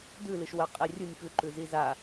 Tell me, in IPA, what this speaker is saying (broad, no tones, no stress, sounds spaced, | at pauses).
d ʉ l ɨ ʃ w ɐ qʼ e rʲ u nʲ f ʉ ǃ ʉ z i z a